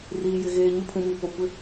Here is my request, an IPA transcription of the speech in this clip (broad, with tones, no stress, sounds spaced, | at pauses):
r iː˨ j ɪ˨ ɣ eː˨ ɲ ʊ˦˨ pʰ ũ˨ m i˨ p o˨ kʷ ɪ˦